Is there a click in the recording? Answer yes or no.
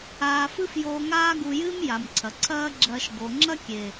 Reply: yes